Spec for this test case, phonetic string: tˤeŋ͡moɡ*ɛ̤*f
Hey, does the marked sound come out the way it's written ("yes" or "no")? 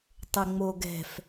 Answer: yes